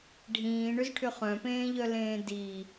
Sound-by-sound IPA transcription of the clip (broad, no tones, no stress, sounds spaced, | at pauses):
ɖʱ ĩː ɳ ʏ z ʈʰ ʏ χ œ̃ p ẽː ʎ œ l ẽː d i